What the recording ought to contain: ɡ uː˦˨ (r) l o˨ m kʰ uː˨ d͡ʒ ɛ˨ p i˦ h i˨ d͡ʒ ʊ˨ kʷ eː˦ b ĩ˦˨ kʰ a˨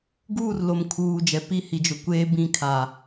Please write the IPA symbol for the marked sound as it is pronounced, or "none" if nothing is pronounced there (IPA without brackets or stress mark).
r